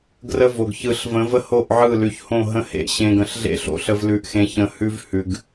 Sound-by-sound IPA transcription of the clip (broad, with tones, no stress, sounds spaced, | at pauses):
ɡ r ə˦ v o˨ ɡ ç ɯ˨ ɬ v ə̃˨˦ v ə˦ h o˦˨ ʔ ʕ ɯ˦˨ l ʉ˨ ç h õ˦˨ ɦ ə̃˦ h ḛ˦˨ ɕ ẽ˨ ɡ ə̃˨ ɬ ɮ ḛ˦˨ ɬ o̰˦˨ ɬ ə˨ v l ʉ˨ ʔ x ẽ˨ ç ə̃˨ h ʉ˦ v h ʉ˨ ɡ